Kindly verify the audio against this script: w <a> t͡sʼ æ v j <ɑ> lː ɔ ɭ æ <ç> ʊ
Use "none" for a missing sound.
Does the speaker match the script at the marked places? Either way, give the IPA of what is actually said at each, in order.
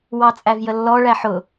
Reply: ɑ, ə, ħ

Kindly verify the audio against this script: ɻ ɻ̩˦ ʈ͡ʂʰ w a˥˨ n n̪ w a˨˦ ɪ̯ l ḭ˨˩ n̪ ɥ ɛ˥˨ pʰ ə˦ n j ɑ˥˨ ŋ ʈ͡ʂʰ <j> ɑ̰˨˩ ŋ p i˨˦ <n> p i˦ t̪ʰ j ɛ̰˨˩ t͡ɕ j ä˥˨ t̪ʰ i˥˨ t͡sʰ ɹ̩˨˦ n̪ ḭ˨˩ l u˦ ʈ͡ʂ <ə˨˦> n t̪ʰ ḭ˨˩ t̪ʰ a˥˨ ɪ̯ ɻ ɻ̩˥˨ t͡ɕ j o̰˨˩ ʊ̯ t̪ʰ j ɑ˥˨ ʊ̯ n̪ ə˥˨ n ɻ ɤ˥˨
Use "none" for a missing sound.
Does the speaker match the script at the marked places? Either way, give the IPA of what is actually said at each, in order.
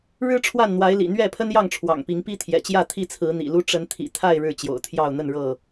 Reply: w, ŋ, ə˨˦

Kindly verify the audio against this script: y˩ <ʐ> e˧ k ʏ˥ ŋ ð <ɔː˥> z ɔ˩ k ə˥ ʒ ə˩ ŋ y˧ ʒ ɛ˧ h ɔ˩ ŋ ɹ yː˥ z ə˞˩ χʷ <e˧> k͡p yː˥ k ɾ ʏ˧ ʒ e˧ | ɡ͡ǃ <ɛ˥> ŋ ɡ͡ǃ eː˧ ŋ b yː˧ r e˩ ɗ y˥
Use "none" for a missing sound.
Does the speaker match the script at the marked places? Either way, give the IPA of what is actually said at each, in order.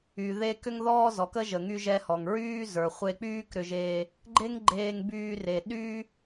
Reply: ð, ɔː˥, e˧, e˥

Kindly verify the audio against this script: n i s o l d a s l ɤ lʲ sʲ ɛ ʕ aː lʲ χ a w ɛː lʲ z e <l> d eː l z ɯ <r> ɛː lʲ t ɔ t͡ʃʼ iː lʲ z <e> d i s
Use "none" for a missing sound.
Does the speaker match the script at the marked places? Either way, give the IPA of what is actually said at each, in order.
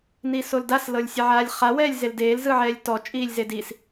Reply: l, ʕ, e

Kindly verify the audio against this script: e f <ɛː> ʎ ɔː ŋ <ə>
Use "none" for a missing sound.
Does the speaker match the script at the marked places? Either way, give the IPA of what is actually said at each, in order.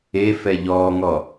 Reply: ɛ, ɔ

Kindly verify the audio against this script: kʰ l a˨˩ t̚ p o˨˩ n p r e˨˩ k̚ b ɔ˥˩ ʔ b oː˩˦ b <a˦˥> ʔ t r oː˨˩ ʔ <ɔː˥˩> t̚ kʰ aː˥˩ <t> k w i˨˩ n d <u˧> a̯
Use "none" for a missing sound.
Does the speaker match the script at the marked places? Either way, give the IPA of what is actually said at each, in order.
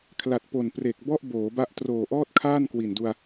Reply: a˦˥, ɔː˥˩, n, u˧

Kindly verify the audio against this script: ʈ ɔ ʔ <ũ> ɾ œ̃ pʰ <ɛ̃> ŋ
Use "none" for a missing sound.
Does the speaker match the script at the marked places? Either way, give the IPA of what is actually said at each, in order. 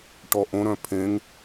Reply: õ, ẽ

